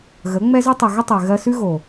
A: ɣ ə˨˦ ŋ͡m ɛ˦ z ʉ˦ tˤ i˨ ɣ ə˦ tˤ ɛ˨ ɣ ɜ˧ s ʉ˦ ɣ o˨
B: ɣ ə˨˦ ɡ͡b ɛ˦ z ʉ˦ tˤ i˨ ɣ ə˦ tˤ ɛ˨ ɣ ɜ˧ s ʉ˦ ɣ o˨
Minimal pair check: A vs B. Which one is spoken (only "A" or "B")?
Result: A